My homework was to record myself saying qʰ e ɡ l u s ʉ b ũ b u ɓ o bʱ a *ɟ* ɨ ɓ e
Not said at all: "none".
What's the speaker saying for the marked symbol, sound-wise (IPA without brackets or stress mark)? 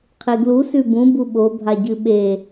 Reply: ɟ